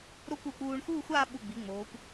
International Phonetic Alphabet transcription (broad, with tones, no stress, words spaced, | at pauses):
ɾo˥˧kʷ u˧˩k͡puː˧ɳ xuː˥˧xʷaː˥˧ɓu˧˩ɡ͡bi˩˧ ŋ͡moː˩˧kʷ